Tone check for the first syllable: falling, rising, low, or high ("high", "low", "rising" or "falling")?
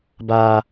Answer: high